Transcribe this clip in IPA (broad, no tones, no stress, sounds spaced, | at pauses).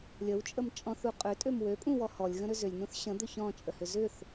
lʲ ə w t͡ʃʼ ə m t͡ʃʼ ɔ̃ θ u qʼ ø tʼ ø m w ø pʼ ũ w ɔ h ɔ lʲ ɣ ə̃ ɾ ʏ z ʏ lʲ n ũ θ ɕ ə̃ d̪ ʏ ç ɔ̃ t͡ʃʼ ə h ʏ z ʏ θ